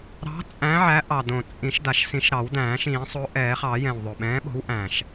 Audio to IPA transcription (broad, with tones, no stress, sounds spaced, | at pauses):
ɾ ɑ̤˨˥ t͡sʼ æ̃˨˥ ʕ æ˨˥ ʔ ɑ˨˩ d õ˨˩ t͡sʼ ĩ˨˩˦ ʃ d a˨˩ ʃ s ĩ˨˩˦ ʃ ɾ ɑ˨˩˦ w d æ̃ː˨˩˦ ʃ ĩː˨˩˦ sˤ o˨˥ ʔ ɛː˨˩˦ χ ɑ˨˩˦ j ɛ̃˨˩ w ðˤ o˨˩ ɓ ɛ̃ː˨˥ ɓ o̤˨˥ w ʔ æ̃ː˨˩ ʃ